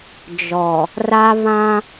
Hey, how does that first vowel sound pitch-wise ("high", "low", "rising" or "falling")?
low